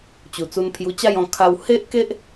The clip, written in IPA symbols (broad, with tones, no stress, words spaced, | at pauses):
t͡ɕu˨˩t͡su˧npʰju˧t͡ɕa˥˧j ɔ̃˧ kʰa˧w he˦ʔke˦ʔ